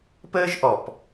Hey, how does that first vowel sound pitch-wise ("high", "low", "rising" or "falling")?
high